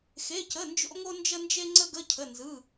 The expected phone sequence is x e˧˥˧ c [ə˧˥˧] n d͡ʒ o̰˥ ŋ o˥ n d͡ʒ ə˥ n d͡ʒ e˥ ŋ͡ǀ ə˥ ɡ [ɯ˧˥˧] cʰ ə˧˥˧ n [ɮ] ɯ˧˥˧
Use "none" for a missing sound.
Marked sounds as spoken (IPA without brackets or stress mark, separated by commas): ə˧˥˧, ə˧˥˧, z